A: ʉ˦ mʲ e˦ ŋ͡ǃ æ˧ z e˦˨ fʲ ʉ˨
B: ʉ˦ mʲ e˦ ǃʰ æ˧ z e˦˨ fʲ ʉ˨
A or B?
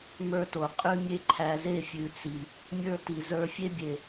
B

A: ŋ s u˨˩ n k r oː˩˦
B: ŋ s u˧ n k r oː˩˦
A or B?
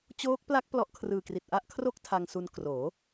B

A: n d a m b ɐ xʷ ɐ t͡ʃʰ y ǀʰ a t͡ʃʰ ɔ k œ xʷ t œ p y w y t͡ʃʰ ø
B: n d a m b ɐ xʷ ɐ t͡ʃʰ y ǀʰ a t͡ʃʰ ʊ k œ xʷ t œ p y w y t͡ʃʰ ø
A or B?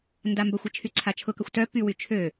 B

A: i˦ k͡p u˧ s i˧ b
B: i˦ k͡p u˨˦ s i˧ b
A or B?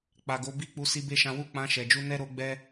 A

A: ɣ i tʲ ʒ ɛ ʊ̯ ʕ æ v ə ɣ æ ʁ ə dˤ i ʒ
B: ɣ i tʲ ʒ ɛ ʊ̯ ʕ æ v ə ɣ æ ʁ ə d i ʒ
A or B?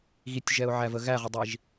A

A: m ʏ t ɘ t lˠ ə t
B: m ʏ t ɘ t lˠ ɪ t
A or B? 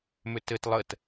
A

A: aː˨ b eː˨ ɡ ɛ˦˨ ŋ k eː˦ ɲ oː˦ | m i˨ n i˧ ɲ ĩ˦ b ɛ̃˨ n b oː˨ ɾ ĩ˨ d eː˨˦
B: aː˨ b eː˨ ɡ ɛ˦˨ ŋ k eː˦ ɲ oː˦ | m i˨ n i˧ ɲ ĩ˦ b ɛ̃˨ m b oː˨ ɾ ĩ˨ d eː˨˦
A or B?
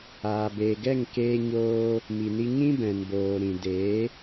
A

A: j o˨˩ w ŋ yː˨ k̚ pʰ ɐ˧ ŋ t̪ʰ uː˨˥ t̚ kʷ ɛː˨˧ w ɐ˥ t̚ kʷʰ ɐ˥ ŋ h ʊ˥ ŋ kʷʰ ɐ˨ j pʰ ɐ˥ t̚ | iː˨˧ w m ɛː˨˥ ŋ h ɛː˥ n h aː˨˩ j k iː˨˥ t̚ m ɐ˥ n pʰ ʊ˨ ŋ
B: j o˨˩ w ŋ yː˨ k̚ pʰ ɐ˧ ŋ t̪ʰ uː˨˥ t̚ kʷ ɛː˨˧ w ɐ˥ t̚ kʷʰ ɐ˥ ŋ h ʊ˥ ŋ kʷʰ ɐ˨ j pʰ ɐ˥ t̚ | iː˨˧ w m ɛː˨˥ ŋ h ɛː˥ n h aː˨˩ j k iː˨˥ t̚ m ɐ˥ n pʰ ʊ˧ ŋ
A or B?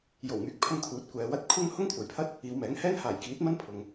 A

